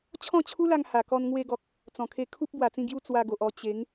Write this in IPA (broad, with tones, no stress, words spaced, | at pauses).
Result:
t͡ɕʰɔ̃˥˧t͡ɕʰu˦la˧ŋ ha˨˩kɔ˧n ŋwe˧ɡɔ˨k̚ | t͡sɔ̃˨˩kʰe˧ kʰu˦p̚ bwa˨˩t͡sĩ˥˧ɡju˥˧ t͡swa˧ɡo˨ʔɔ˧ t͡ɕe˨˦ŋ